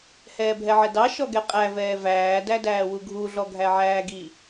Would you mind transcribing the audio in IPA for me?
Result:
hɛːbʱɛʕɛdɑ ʃɔɡɛqʼæ vɛːvæː dædæːwuɡʱu ɮɔɡʱæʕæːɡi

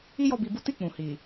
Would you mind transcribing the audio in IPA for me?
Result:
i˦jɔ˧bi˧bu˦ ti˦˨ k͡pũ˨hi˨

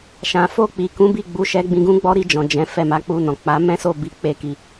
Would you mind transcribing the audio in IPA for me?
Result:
ʃã˨ fo˧k͡pi˨ kũ˨˦bi˦˨ɡ͡bu˨˦ʃɛ˧ ɡ͡bĩ˧ɡũ˦ɡ͡bɔ˦ ɾi˧d͡ʒɔ̃˨ d͡ʒɛ̃˨˦ fɛ˦˨ma˨˦k͡pu˧nɔ̃˨ k͡pa˨˦mɛ̃˦so˦˨ bi˨˦ k͡pe˦˨ki˧

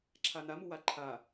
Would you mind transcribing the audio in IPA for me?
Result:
ǁʰanamu waǃʰa

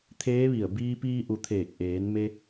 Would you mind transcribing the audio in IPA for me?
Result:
t̪ʰeː˧˥ʋi˧˩ə̯ biː˧piː˧ʔu˩ t̪ʰeː˧˩k̚ʔeː˩˧nme˧

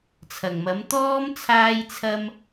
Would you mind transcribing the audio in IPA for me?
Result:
t͡sʰɐ˨˩ŋmɐ˨˥m t̪ɔː˥m t͡sʰaː˧jt͡sʰɐ˧m

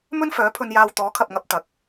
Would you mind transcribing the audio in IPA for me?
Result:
mɵ˥nfœː˨˥pʰɵ˧njaː˧w t̪ɔː˨˥kʰɐ˨p̚ŋɐ˧p̚ t̪ɐ˨˥k̚

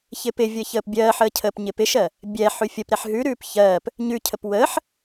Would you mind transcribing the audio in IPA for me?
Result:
çɪːpɪvʲə çəːpbʲɜːħəːcʰəːp ɲɪpɪʃɜ | bʲɛ ħʉfʲəpɾɛħ ɦʉɾʉːp çɜːp | ɲʉcʰəp wəːħ

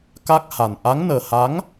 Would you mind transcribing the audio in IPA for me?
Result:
ka˦˥k̚ha˨˩n ʔa˨˦ŋnəː˨˩ha˨˦ŋ

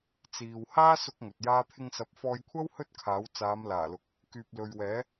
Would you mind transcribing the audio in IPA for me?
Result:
t͡siː˨w haː˥sʊ˧k̚ ŋɵ˨t̚jaː˥ t̪ʰɪ˧ŋsɐ˨˥p̚fɔː˧jkʷʰɐ˥w hɵ˥t̚kʰaː˨˥w t͡saː˨˧mlaː˨˩lʊ˨k̚ | kyː˨p̚lɵ˨ɥwɛː˨˥

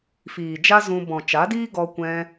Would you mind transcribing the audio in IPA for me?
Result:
fiː˨d͡ʒa˦zũ˧ bɔ̃˨t͡ʃa˨˦diː˦ ɡɔ˧ kʷɛ̃˧

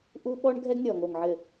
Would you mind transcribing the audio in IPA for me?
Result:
ʔu˦ɓɔ˦ɳ ɡʱɛ˦ɡnʲɔ˨ŋo˨ŋʕɘ˨

